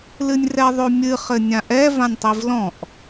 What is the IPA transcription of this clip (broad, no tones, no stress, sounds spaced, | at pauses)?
l ɨ nʲ r ɛ ðˤ o mʲ ɨ χ ɘ nʲ ã ʔ ɛ v ã nʲ tˤ i v l ɔ̃ ʔ